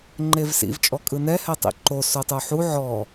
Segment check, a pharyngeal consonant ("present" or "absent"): present